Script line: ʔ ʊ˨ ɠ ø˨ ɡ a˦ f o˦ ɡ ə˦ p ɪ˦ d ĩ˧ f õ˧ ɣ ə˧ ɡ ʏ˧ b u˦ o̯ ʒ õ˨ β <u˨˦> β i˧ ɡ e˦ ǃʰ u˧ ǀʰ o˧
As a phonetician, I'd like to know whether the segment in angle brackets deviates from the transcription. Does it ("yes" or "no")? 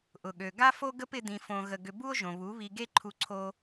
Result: no